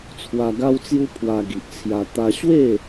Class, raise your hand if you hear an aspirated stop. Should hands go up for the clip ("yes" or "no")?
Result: yes